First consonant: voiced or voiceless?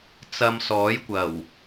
voiceless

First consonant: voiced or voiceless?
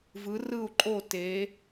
voiced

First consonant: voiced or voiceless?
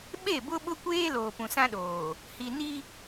voiced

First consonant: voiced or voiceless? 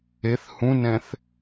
voiceless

